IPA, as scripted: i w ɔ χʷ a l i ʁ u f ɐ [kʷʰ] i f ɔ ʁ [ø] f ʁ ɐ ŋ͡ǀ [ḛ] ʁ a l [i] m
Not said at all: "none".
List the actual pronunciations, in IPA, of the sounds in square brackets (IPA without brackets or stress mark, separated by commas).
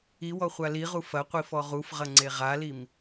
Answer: qʷ, u, e, i